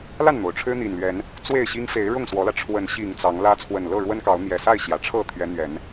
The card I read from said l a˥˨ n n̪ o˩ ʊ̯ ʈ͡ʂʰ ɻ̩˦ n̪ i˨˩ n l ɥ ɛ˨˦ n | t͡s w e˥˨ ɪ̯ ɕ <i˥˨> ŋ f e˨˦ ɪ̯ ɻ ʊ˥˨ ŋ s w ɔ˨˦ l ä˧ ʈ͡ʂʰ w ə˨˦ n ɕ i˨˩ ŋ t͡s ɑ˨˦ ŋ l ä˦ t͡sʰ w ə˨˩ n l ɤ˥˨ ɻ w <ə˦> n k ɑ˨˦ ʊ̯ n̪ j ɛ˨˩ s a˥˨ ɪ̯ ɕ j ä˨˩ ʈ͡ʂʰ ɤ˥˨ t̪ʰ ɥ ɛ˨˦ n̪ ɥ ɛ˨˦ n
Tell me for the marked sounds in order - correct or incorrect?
incorrect, correct

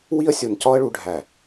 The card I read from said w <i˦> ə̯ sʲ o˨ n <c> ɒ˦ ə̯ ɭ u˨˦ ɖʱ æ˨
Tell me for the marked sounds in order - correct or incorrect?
correct, correct

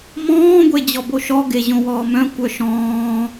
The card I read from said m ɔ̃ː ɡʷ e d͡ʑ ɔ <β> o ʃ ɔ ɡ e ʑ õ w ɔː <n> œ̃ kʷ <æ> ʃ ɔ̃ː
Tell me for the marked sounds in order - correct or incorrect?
incorrect, incorrect, incorrect

